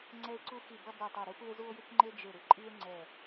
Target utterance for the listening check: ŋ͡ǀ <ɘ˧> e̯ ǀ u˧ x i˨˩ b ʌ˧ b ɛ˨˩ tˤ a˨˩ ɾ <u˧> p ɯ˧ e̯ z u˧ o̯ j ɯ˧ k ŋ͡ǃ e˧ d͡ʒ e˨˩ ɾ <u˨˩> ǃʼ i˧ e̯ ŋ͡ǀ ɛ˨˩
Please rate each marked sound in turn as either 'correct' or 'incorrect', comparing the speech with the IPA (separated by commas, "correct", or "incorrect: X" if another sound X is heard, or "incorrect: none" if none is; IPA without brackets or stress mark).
incorrect: ɛ˧, correct, incorrect: ɯ˨˩